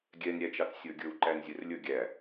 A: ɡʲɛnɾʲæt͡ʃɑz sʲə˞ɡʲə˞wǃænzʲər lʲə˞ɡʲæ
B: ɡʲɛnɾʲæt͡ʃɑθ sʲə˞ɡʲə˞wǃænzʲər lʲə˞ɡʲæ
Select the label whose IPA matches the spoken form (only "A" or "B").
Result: B